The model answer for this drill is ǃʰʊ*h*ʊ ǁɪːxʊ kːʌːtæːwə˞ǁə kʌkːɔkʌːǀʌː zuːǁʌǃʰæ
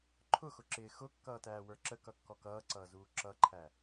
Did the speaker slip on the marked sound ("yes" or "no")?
yes